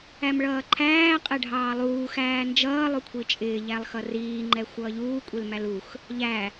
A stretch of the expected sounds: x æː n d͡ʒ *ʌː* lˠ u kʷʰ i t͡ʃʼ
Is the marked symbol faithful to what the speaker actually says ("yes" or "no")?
yes